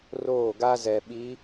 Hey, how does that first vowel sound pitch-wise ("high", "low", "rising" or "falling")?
falling